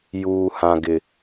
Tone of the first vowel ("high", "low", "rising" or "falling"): low